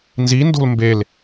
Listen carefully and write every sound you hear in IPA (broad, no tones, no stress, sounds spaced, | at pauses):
n z i n d o̤ l m b e l